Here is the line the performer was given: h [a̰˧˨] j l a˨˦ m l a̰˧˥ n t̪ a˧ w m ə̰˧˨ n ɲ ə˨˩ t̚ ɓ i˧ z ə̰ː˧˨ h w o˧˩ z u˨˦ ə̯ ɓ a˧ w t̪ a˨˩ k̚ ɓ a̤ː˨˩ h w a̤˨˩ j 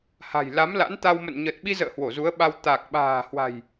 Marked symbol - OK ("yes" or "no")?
no